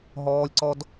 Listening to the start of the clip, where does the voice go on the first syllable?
high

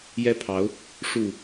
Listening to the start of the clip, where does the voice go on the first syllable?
high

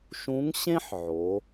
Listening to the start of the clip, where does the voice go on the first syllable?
rising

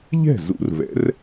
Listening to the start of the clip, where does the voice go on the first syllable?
falling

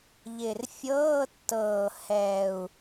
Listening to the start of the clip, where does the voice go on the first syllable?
low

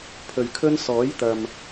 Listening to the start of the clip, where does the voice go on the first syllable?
low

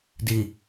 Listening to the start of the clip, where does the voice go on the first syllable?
low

